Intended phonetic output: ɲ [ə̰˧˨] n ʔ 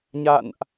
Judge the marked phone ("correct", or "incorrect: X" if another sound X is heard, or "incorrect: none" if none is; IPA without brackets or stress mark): incorrect: a̰˧˨